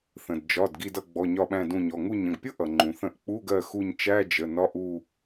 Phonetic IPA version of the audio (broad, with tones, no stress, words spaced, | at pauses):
θə̃˩dd͡ʒɒ˩˧˩d ɡi˦˨dʌ˦˨ɡ͡bɔ˩˧˩ ɲɒ˦˨ɓæ̃˦˨dũ˦˨ɲɔ˩˧˩ ŋu˦˨ɲə̃˩˧˩ɡpʲʊ˥ ʔʌ˩ŋ͡ǃũ˩θə̃˦˨ʔ k͡pu˧˥˧ɡɜ˦˨ xu˦˨ɲt͡ʃæ˧˥˧d͡ʒə˩˧˩ nɒ˧˥˧ʔu˦˨